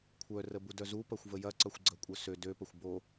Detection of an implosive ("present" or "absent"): absent